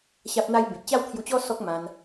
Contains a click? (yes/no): no